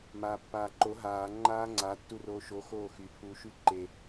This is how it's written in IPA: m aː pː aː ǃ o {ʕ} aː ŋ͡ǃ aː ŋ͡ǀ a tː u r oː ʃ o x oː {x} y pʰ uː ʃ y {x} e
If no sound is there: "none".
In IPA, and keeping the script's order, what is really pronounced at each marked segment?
ɦ, x, ǃ

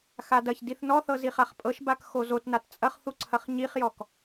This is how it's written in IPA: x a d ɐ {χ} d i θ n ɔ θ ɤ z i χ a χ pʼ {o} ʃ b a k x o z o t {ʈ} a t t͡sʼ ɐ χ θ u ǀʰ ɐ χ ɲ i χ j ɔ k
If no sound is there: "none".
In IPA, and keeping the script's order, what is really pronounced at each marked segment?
ç, ɤ, n

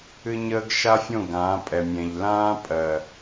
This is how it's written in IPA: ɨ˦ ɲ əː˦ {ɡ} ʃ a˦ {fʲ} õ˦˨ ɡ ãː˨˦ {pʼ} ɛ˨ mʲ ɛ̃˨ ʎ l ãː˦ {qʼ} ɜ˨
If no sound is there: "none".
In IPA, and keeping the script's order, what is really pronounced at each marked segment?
ɡ, fʲ, pʼ, pʼ

